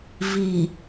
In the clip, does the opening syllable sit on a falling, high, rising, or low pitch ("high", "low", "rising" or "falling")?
low